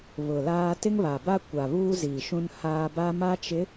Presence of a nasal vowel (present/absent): present